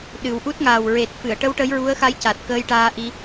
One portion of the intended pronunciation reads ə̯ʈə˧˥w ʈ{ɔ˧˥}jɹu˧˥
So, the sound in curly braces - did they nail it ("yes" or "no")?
no